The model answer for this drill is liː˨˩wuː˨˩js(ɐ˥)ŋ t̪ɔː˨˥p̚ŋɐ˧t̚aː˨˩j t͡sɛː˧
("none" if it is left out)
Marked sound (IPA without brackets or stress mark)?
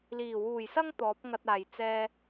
ɐ˥